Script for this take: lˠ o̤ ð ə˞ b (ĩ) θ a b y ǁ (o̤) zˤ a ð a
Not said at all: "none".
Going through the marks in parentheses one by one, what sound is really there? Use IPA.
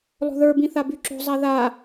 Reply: ĩ, o̤

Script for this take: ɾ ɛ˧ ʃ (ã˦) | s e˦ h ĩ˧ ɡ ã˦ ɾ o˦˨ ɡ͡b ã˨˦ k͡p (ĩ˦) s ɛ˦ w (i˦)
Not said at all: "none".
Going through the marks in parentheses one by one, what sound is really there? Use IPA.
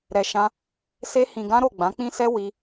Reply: ã˦, ĩ˦, i˦

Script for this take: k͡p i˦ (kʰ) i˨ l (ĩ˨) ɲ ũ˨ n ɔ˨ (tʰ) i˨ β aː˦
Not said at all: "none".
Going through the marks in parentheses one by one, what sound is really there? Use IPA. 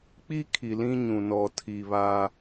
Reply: kʰ, ĩ˦, tʰ

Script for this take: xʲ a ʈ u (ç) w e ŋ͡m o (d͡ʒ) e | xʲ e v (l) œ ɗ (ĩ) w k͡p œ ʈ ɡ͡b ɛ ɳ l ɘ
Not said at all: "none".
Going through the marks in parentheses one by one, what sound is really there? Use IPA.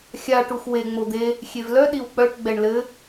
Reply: x, d̪, l, i

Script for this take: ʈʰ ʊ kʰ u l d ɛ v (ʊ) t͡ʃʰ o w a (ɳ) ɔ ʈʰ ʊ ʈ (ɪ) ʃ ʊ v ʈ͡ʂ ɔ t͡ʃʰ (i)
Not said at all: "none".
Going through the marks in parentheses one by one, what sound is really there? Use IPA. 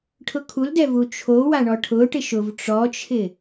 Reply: u, ɳ, ɪ, ɪ

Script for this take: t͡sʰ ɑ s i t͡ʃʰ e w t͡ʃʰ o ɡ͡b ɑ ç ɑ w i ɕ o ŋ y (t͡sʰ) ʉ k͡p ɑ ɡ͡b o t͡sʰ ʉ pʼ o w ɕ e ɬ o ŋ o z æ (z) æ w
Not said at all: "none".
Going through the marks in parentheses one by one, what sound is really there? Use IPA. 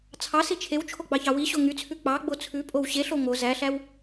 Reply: t͡sʰ, ɬ

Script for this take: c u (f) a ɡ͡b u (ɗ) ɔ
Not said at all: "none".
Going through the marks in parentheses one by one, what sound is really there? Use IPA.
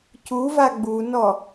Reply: v, n

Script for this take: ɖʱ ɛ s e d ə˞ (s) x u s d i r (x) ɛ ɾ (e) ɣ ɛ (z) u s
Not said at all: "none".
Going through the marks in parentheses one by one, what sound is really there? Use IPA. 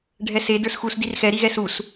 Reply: s, x, i, s

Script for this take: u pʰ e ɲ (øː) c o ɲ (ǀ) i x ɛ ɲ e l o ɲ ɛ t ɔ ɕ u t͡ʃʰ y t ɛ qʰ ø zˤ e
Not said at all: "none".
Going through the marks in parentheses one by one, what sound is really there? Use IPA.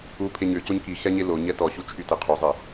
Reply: ø, k

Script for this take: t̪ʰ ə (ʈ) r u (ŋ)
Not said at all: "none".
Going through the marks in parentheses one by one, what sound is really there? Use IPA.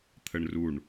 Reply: ɳ, ɳ

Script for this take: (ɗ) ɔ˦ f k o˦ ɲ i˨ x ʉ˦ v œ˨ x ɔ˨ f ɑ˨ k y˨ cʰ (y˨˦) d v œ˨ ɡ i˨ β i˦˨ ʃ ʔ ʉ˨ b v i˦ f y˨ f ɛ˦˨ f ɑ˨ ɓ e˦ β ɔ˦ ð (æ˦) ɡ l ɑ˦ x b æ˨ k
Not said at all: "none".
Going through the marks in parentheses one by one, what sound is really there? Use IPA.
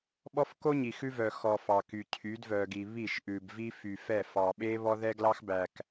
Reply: ɓ, y˨˦, ɛ˦

